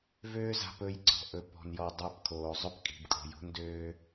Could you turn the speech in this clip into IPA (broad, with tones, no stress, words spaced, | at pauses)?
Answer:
vøː˦za̤˧pɵ˧j ǀɔ̤˨ʔɵ˨pɔ̤˨njɔ˨ dˤa˦˨pkʰoː˨zˤɵ˦p kʼi̤˨bkʼo̤˨jo̤˦n døː˧